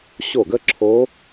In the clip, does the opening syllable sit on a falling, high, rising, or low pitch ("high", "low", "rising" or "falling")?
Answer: falling